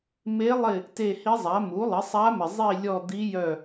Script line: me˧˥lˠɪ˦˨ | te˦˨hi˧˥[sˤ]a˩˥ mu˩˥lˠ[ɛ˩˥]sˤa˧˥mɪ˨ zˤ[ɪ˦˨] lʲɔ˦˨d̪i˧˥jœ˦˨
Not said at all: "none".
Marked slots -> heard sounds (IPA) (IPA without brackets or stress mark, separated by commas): zˤ, ɪ˩˥, i˦˨